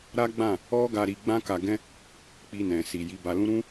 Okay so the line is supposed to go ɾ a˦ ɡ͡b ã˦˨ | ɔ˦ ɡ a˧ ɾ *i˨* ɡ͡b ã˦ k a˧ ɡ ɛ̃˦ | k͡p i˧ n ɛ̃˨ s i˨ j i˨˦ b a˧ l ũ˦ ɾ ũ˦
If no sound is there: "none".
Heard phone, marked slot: i˧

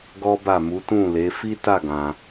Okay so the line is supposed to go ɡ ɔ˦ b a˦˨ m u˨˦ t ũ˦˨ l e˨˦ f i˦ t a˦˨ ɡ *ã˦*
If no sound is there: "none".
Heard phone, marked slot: ã˧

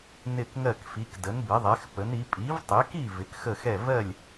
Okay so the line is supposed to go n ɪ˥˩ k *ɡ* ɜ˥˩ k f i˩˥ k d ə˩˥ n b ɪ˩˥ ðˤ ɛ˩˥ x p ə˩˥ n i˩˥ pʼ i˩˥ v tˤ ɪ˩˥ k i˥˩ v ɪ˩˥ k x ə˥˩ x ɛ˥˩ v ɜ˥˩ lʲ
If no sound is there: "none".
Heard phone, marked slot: ŋ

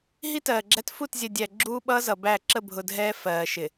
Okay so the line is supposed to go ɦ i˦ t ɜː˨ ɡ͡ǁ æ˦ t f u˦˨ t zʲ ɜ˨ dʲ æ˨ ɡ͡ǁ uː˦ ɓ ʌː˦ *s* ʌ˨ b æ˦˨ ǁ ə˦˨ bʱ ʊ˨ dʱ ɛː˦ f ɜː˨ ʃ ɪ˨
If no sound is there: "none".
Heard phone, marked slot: z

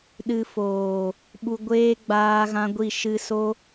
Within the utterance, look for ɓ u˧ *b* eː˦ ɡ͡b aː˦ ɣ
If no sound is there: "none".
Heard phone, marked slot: ɡʷ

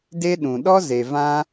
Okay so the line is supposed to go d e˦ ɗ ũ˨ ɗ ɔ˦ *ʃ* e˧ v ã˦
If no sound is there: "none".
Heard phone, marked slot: z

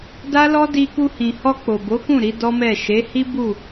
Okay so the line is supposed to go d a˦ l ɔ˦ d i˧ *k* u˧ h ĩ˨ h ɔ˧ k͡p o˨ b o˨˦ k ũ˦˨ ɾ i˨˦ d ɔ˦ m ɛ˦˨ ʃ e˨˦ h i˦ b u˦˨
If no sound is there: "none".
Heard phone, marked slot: k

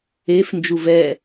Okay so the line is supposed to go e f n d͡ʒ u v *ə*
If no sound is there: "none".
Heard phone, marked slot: ɛ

